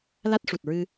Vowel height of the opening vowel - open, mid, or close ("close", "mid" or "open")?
open